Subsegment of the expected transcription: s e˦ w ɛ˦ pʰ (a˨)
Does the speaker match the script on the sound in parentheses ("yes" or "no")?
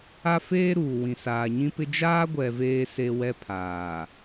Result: no